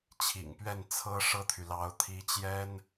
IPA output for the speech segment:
t͡ɕʰ ḭ˨˩ ŋ p ɥ ɛ˥˩ n t͡sʰ ɤ˥ ʂ ɤ˥˩ t̪ʰ y˩ l ɑ˧˥ ʊ̯ t̪ʰ i˧˥ t͡ɕ j ɛ˥ n

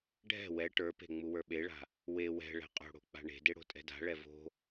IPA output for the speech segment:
ɖʱ ɛ̤ w ɛ ʈ ə˞ p e̤ ŋ͡m u w ə˞ ɓ e ɭ a̤ | w e w ɛ̤ ɭ ɛ̤ qʼ o̤ ɽ o̤ k͡p a̤ ɳ e̤ d e ɽ o̤ tʼ ɛ̤ d a̤ ɭ ɛ v o̤

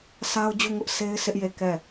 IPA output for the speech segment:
sʰ a˦ ʊ̯ d͡ʑ u˦˨ ŋ ʊ˦ ʔ sʰ e˦ ɪ̯ sʰ ɪ˦ ʔ j e˦˨ k ɛ˦˨

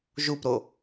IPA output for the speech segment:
ʒ u p ɾ o

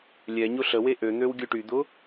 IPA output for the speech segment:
lʲ ɛ ɲ ʊ ɬ ə w e ʔ ø n̪ ø w ɡʲ œ ʈ y d̪ ʊ

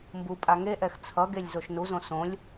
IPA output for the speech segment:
m b u pʼ a ŋ e ʔ ɛ x t͡sʰ ʌ ɡ e lʲ z o ʃ n u z õ s õ lʲ

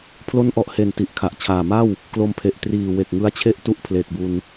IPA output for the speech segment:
pʰ l o˦˥ n ʔ ɔ˨˩ ʔ h e˨˩ n t i˨˩ ʔ kʰ a˨˩ ʔ t͡ɕʰ aː˨˩ m a˥˩ w | k l o˧ m pʰ e˨˩ ʔ t r iː˨˩ w e˨˩ k̚ ŋ ɯ˦˥ a̯ t͡ɕʰ e˥˩ ʔ t u˦˥ ʔ pʰ l e˨˩ k̚ b u˧ n

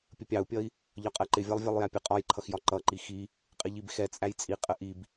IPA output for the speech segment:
pʲ ə pʲ ɑ u̯ pʲ ʌ i̯ | ʎ ɒ qʼ ɜ ǃ ɪ vʲ ɜ lˠ vʲ ɛ lˠ j æ pʲ ə qʼ ɒ j ǃʰ ʌ x j ɒ ǃ ʌ ǃ i x i | qʼ ɪ ʎ i b x ɛ t͡sʼ æ j t͡sʼ i qʼ ə ʔ i b

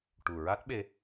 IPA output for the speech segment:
ʈ u˨˩ ɹ a˦˥ t̚ ɓ e˧

